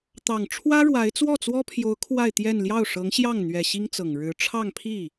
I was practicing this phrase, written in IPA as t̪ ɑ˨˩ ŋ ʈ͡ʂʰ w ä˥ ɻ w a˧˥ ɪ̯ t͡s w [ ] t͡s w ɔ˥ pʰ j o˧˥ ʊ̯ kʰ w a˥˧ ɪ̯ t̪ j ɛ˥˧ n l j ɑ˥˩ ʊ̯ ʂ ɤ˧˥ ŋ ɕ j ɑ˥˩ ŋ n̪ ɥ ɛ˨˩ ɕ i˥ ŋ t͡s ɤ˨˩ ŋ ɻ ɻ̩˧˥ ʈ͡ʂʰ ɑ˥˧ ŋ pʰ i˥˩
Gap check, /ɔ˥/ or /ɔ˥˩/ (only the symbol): ɔ˥˩